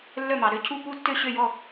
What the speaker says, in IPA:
lː œ˦˨ m ɑ˨ ɾ ø˦˨ cʰ u˦˨ p u˦˨ tː ø˦˨ ɕ ø˦˨ j ɔ˦˨

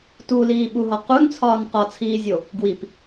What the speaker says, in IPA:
t u l iː ɓ u ɦ ɒ q u n t͡sʰ ɒː n q ɒ t͡sʰ iː zʲ o | ɡ w i p

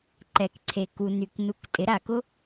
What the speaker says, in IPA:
ǃ ɛ˩ k ǀʰ e˩ k u˩ n y˩ k n u˩˥ k tʼ ɪ˩˥ ɾ a˩ k ʊ˥

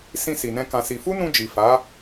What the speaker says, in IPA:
s ĩ˧ s i˨ n ɛ̃˧ k ã˦ s i˦ f u˦ n ũ˧ d͡ʒ i˨ f a˨˦

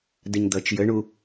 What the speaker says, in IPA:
d ə ɲ d̪ ʌ t͡ʃ j ə ɳ u

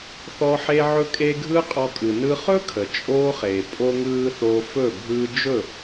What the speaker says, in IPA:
θ ɔ˧ ħ e˧ ʕ ɵ˧ kʼ e˧ ɡʱ ɯː˦ qʼ ɔ˧ kʼ ɯ˨ n ɯ˦ χ ɵ˦ kʰ ə˨ t͡ʃʼ oː˦ χ eː˨ pʼ o˧ ŋ ɯː˧ θ oː˧ f ɵ˦˨ bʱ ɯː˦ d͡ʒ ɵ˦˨

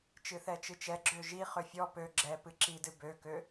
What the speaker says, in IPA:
t͡ʃ ɨ θ ɛ t͡ʃ ɨ t͡ʃ ɛ ɡ͡ǁ ø ʒ i χ ø fʲ ɔ p ø ɡ͡ǁ ɛ p ɨ ǁ i d ɨ b ø k ø

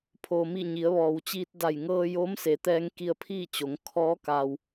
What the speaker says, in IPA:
pʰ oː˩ m i˧˩ ɲ i˩˧ ə̯ ʋ ɔː˩ w t͡ɕ iː˧ t̚ d a˧˩ j ŋ ɤː˧ j o˧˥ m s e˩˧ t̪ ɛː˧ ŋ k i˧ ə̯ pʰ iː˥˨ t͡ɕ o˩˧ ŋ kʰ ɔː˧˥ k a˩ w

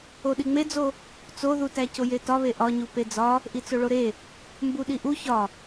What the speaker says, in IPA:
o ɗ i ŋ͡m e d͡z o | t͡s o ð u t æ c o j e t ɒ β e ʔ ɒ ɲ u p e d͡z ɒ | ʔ i t͡s o ɭ o ɾ e | m b u ɗ i ʔ u ç ɒ

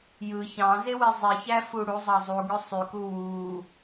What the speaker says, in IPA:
j ɯ ç ɑ̃ z e w i zˤ i ç æ f u ɽ u zˤ ɑ zˤ u ɡ ø sˤ y k u w u

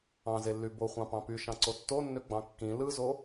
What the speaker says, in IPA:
ɑ̃ z e lː y b o χʷ ɑ̃ p ɑ̃ p y ʃ ɑ̃ ǀ o tː o nː ø ɡ͡b ɑ̃ kː ĩ l ɯ z o

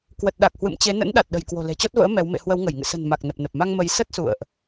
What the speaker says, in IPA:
k w ə˨˩ t̚ ɗ a˨˩ k̚ h w ɨ̰˧˨ m t͡ɕ e˨˦ n ə̰˧˥ n ɗ a˨˩ t̚ ɗ ə̤˨˩ j k w o̤˨˩ l e̤˨˩ t͡ɕ ɔ˦˥ t̚ v ə̰ː˧˥ m ɛ˨˦ w m ḛ˧˨ h w ə˨˦ w ŋ ə˧˩ j ŋ ɨ̰˧˨ s ə̤˨˩ n m a˨˩ k̚ n ə˨˩ p̚ n ə˨˩ p̚ m a˧ ŋ m ə˨˦ j s ə˦˥ t̚ s ṵ˧˨ ə̯ ʔ

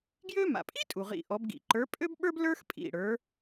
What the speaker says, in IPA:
ɡ j ø˥ m a̰˩ pʼ i˥ tʼ u˩ ʁ ḭ˧˩ ʔ ɔ˨˦ b ɡ ḭ˧˩ ǃ ə˞˨˦ pʼ ø˥ b ɓ ə˞˥ b l ə˞˥ x pʼ ḭ˧˩ ɽ ə˞˨˦

